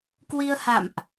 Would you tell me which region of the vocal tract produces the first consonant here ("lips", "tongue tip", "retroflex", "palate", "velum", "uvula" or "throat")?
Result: velum